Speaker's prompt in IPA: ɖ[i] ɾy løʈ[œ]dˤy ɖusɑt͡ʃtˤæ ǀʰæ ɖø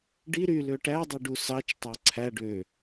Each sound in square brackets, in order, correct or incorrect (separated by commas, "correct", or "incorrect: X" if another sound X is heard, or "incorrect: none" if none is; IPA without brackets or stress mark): correct, incorrect: æ